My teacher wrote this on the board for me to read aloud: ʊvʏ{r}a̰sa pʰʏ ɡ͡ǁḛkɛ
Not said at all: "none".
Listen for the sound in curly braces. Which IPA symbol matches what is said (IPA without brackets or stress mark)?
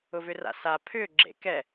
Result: r